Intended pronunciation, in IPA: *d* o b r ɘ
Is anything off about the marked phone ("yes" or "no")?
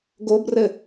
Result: yes